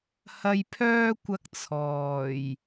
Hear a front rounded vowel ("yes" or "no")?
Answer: yes